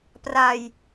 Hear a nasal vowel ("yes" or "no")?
no